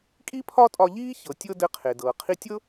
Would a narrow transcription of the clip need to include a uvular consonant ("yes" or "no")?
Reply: yes